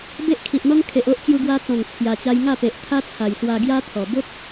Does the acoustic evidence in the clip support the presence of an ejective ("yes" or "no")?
no